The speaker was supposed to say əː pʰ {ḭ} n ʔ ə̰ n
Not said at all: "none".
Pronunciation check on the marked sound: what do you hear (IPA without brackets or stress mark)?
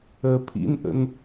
ḭ